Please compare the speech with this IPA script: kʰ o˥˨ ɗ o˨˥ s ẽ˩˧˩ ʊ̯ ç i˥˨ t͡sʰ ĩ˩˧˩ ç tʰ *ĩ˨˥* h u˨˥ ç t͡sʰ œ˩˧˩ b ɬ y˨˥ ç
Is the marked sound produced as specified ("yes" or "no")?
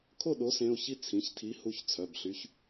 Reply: no